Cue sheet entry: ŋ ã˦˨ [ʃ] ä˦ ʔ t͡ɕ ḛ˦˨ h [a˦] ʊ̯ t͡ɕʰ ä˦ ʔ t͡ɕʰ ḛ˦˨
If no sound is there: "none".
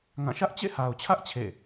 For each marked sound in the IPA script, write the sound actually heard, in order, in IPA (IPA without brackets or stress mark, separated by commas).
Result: ʃ, a˨